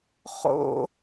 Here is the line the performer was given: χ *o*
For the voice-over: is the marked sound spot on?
no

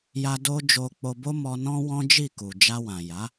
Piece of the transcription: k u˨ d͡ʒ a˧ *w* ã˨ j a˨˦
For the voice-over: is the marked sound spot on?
yes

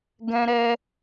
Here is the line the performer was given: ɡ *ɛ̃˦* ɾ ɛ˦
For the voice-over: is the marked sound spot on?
yes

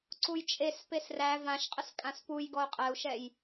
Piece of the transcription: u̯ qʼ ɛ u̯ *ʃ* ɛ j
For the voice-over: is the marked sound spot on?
yes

